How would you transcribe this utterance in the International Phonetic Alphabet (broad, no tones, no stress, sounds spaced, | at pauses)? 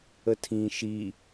ə tʰ ĩ ʃ i